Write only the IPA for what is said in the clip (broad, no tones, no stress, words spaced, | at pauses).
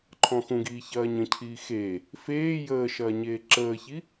ǃʰɔ̃xũɡiː çɐːɲə̃cʰiː xe | feː jəː ʃɐːɲeːǁəːçi